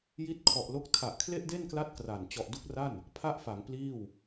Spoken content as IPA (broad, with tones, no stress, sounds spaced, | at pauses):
j i˦˥ t̚ kʰ ɔ˨˩ ʔ l o˦˥ k̚ tʰ a˨˩ ʔ kʰ l e˥˩ ʔ d e˥˩ n k l a˦˥ t̚ k r a˨˩ n t͡ɕ ɔ˨˩ ʔ d u˦˥ k̚ r a˥˩ n | pʰ a˥˩ ʔ f a˩˦ ŋ p l iː˥˩ w